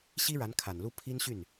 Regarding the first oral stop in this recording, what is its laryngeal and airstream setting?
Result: aspirated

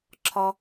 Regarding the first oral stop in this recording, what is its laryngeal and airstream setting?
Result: click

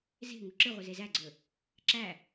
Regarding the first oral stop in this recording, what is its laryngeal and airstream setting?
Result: click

